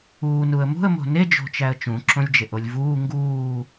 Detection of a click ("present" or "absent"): present